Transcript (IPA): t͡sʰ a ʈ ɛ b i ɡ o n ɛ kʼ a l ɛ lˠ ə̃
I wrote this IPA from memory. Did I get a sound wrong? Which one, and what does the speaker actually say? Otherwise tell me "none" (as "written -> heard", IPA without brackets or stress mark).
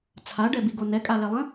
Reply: ʈ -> ɖ